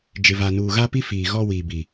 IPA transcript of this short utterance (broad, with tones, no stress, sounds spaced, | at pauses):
d͡ʒ ɪ˨ v a˨ n uː˨ ɣ a˦ p i˦ f iː˨ ɣ ɔ˦ w iː˨ b i˨